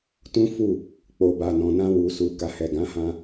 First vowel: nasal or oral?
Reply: nasal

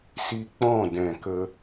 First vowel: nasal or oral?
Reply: oral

